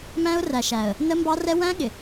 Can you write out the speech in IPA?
m æ̃˦ ʊ̯ r æ˨ ʃ æ˨ ə̯ | n ə˦ m b ɑ˦ r ɛ˦ w æ̃˦ ɠ ɪ˨

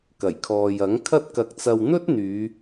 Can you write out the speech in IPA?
k ɐ˨˩ j kʰ ɔː˨ j ɐ˨˥ ŋ kʰ ɐ˥ t̚ k ɐ˧ k̚ t͡s ɐ˧ w n̪ ɵ˥ t̚ n̪ yː˨˧

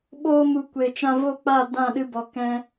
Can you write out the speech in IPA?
ɓ oː˧ m u˨ kʷ e˨ t͡ʃ ã˧ v o˦˨ k͡p a˦˨ d ã˦˨ ɗ ɨ˧ b ɔ˨ k ɛ̃˧

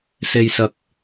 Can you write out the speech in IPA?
s e˥ j s ɐ˥ k̚

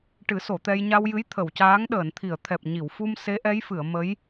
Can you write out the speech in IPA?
ʈ ɨ˨˩˦ s o˨˩˨ t̪ ɛ˧ j ɲ a˧ w j ɨ˧˥ j t̪ʰ ə˨˩˨ w c aː˧˥ ŋ ɗ əː˨˩˨ n t̪ʰ i˨˩˨ ə̯ t̪ʰ ɛ˨˩ p̚ ɲ i˨˩˨ w f u˧ m s e˧˥ ʔ ɛ˧˥ j f ɨ˨˩˨ ə̯ m ə˧˥ j

